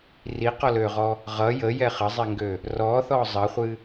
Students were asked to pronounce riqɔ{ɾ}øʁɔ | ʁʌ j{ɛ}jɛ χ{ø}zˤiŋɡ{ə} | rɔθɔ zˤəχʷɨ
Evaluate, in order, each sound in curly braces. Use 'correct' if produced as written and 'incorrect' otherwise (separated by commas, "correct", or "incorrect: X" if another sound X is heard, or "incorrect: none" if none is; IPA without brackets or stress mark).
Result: incorrect: l, incorrect: ə, incorrect: ə, incorrect: ø